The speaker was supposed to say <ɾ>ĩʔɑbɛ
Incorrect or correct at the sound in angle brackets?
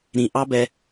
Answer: correct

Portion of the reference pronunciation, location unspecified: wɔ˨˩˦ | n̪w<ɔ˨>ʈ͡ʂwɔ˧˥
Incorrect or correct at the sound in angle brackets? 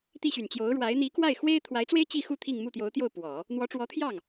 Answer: incorrect: ɔ˧˥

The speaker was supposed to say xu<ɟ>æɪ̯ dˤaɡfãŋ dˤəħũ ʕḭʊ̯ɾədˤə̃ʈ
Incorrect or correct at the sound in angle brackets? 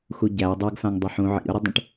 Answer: correct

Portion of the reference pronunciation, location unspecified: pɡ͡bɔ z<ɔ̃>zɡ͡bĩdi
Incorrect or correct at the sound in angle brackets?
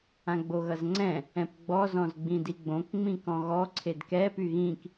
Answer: correct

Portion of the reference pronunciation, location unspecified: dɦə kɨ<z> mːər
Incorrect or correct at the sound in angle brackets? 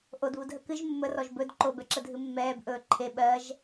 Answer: incorrect: ʒ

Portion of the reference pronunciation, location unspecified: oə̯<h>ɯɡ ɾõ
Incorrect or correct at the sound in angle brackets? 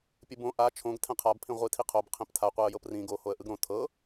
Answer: incorrect: ʔ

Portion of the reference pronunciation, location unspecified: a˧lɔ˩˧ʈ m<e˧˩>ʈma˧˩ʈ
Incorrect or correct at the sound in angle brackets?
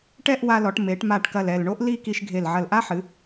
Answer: incorrect: e˩˧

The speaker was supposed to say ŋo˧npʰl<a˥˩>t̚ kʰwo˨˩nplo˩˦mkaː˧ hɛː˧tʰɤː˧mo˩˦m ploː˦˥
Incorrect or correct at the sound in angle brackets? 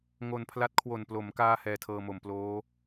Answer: incorrect: a˦˥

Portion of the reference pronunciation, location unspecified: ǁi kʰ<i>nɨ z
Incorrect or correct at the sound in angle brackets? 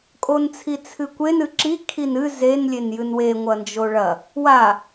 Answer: correct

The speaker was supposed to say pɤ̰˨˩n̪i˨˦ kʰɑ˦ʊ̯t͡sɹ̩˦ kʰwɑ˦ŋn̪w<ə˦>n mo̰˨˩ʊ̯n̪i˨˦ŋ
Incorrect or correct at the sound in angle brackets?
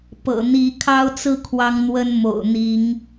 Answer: correct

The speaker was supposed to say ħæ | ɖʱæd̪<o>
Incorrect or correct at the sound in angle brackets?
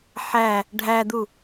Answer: incorrect: u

